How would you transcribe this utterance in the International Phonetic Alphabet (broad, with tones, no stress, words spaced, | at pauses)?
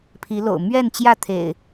pʰi˨˦lo̰˨˩ʊ̯ mɥɛ˥˨nt͡ɕjä˥˨t̪ʰḛ˨˩ɪ̯